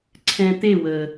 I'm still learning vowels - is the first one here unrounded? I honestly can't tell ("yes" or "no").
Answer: yes